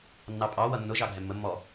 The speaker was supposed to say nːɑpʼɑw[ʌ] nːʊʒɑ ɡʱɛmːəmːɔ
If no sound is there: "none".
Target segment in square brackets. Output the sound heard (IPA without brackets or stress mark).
ʌ